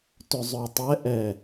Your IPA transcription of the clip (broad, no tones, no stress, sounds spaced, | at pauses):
t ʏ zˤ œ tˤ ɛ ʔ ɛ